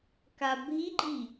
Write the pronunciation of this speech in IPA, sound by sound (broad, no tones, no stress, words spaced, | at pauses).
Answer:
kabʱiɡ͡ǃi